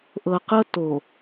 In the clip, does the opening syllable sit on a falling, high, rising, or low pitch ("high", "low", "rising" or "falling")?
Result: low